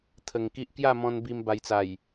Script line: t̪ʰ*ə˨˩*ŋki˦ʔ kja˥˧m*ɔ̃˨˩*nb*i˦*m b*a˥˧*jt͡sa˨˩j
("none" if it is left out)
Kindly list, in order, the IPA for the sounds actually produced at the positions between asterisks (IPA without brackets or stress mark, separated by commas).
ə˧, ɔ̃˧, i˧, a˧